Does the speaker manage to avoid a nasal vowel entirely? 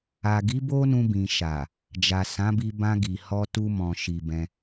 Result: no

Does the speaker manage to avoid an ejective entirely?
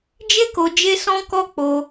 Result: yes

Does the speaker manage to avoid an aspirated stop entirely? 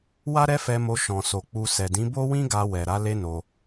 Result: yes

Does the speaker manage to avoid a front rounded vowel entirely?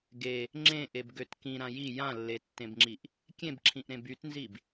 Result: no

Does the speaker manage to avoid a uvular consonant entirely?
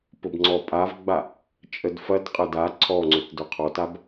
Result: no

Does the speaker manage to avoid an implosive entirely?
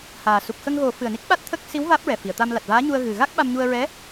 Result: no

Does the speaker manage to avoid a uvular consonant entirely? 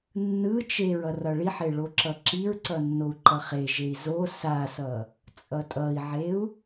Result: no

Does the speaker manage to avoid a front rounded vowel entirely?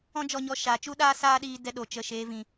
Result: yes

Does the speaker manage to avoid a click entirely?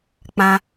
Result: yes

